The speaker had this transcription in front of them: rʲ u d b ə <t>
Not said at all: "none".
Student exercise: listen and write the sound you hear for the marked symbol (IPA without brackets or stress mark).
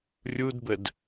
d